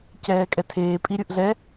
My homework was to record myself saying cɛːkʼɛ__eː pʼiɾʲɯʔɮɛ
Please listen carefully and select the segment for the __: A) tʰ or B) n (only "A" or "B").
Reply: A